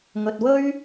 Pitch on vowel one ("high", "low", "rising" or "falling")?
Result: low